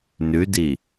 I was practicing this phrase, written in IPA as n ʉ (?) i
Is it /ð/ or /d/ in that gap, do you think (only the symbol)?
d